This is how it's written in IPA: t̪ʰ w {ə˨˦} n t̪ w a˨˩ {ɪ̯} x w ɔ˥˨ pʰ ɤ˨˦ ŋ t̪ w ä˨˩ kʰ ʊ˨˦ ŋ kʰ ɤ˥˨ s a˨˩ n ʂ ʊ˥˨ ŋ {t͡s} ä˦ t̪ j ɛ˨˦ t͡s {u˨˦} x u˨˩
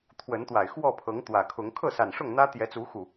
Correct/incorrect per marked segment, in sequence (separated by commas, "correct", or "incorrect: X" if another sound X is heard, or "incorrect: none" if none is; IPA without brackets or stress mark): correct, correct, incorrect: n̪, correct